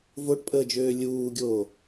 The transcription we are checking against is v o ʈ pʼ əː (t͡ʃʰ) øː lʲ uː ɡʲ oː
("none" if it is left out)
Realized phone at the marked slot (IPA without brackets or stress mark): d͡ʒ